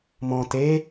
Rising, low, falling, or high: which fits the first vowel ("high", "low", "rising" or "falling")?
low